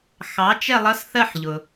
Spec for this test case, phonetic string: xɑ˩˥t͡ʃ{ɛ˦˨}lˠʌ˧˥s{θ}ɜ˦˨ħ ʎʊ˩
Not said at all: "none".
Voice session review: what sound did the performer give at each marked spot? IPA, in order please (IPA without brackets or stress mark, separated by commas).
ɛ˦˨, θ